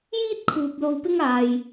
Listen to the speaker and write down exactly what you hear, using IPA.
j iː˥ t̚ kʰ uː˨ p̚ l o˧ w p ɪ˥ ŋ aː˨ j

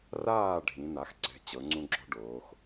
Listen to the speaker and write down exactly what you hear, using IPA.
r aː˥˨ ɖʱ ĩ˩˧ n̪ a˩˧ x ǀ ɛ̤˩˧ t͡ɕ ɤ˩˧ ŋ͡ǀ ũ˦ ɡ͡ǁ ɔ̤˦ ɖ oː˩˧ x

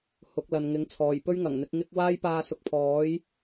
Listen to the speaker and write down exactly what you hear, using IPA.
h ʊ˨˥ k̚ l ɐ˨ n ŋ ɪ˨˥ ŋ t͡sʰ ɔː˨˩ j p ɵ˥ ɥ ŋ ɐ˨˩ ŋ n̪ ɪ˨˥ k̚ ŋ ɪ˥ k̚ w aː˥ j p aː˧ s ʊ˨˥ k̚ pʰ ɔː˨˥ j

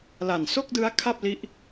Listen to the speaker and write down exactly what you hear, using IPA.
l a˨˩ n s o˥˩ k̚ d ɯ˦˥ a̯ kʰ a˥˩ p̚ l i˦˥ ʔ

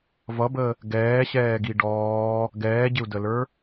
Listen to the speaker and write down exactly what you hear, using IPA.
v ʌ b ə | ɡ ɛː ɕ ɛː ɡ i ɖ ɔː | ɡ ɛː ɟ ɪ u̯ d ə l ə˞

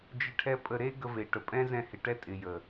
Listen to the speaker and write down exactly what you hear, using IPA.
d͡ʒ ɪ˧ ʈʰ ɛ˧ pʼ ə˧ ɾ e˦ ɡ ə˧ v e˨ ʈ ə˨ pʼ ɛ̃˦ z ɛ̃˧ h ɪ˨ ʈ ɛ˦ tʼ ɪ˨ j ə˨

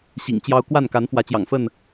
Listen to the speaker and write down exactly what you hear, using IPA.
ɕ ḭ˨˩ ŋ t͡ɕ j ɑ˦ ʊ̯ k w a˥˨ n k a˨˦ n f w ä˨˦ t͡ɕ j ɑ̰˨˩ ŋ f ə˥˨ n

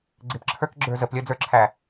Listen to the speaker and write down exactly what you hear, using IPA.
ɡ͡ǀ ɪ p ǁʰ ə˞ k ɡ͡ǁ ə˞ z ə p lʲ əː d͡z ə˞ ǁʰ æ

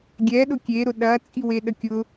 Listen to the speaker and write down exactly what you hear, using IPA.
ɡʲ ɛ ɗ ʊ kʲ e ɾ ʊ ɗ ɐ t͡sʼ i w e ɗ ə kʲ ʊ

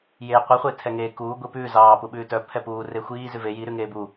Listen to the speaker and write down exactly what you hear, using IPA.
j eː qʷ i χʷ eː tʰ ɛ ŋ eː k uː ɡʷ i p ʉː z ɑː p u ɓ ʉː t œ pʰ ɛ p uː r e xʷ iː z ʉ v e j i ɾ ʉ ŋ eː b u

